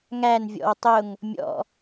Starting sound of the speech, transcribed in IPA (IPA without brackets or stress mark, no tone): ŋ